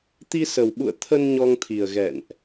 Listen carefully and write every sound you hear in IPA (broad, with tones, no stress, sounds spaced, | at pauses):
t̪ i˧ s ə˨˩ w ɓ ṵ˧˨ ə̯ t̪ʰ ə˧ n ɲ ɔ˧ ŋ t̪ʰ i˨˩ ə̯ ɣ ɛ̰˧˨ n ʔ